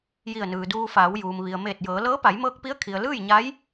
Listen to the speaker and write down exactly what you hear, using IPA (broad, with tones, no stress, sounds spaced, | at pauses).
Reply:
j i˧˩ ə̯ n ɯː˩ d uː˧ f aː˩˧ w j uː˩ m ʋ i˩ ə̯ m eː˧˩ t̚ j ɤː˩˧ l ɤː˧˥ p a˩˧ j m ɤː˧ k̚ p i˧˥ ə̯ kʰ i˩ ə̯ l ɯː˥˨ j ɲ a˧˥ j